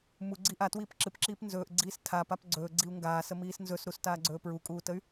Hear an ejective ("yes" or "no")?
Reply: yes